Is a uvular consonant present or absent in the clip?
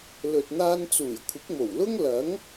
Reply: absent